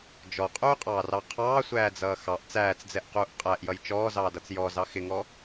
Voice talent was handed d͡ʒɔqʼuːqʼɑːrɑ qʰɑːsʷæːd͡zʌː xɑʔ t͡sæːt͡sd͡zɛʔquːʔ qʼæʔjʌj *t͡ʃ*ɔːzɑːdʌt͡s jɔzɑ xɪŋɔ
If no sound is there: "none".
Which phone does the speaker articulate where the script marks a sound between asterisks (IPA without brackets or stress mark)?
t͡ʃ